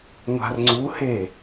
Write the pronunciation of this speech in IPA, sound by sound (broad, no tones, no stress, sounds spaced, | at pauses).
ŋʷ a̤ r ŋ͡ǀ u h e